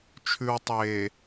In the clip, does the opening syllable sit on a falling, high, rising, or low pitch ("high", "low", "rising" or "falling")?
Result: low